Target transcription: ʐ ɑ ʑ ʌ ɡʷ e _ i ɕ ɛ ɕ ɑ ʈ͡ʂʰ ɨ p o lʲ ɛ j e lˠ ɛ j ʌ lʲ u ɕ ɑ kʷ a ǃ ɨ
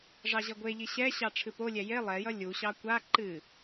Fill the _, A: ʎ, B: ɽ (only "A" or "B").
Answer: A